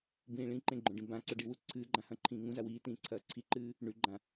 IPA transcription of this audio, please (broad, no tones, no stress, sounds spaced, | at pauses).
b ĩː ɭ ĩ ǃ ẽ ɡ͡ǃ õ ɖ ĩ b ã ǀ ɵ ɖ i w u ǀʰ ɨː ɡ͡ǃ ã h ɐ̃ ǃʰ ĩː ŋ ũ z a w iː t ĩː ǀʰ ɐː ǀʰ i ǃ ɨː | ɳ ʉ ɡ͡ǃ ã